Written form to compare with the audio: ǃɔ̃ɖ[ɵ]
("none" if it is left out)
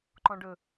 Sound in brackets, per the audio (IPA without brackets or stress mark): ɵ